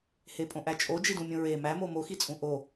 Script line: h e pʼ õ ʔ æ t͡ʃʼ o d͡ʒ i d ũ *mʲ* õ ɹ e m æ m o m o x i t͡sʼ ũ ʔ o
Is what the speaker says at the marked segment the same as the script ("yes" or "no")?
yes